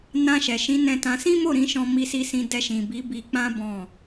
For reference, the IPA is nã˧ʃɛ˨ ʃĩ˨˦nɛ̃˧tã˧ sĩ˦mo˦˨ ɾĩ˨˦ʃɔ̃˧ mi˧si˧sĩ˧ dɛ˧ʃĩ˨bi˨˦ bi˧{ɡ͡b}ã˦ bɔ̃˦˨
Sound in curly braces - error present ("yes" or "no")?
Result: yes